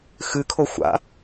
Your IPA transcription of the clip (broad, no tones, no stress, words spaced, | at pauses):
xɨkʰo xʷa̰